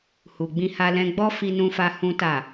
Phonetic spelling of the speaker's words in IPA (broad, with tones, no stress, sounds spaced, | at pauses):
h u˨ ɡ͡b ĩ˧ h a˧ l ɛ̃˧ ɡ͡b ɔ˦ f i˧ n ũ˧ f a˧ h ũ˦ t a˦˨